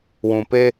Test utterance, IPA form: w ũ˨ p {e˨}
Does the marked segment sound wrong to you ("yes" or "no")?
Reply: yes